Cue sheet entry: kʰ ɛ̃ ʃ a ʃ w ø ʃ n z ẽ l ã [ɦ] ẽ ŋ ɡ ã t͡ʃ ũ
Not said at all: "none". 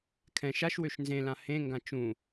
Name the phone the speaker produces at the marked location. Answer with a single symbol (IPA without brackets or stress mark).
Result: h